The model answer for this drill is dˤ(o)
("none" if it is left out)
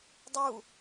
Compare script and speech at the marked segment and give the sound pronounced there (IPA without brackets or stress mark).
u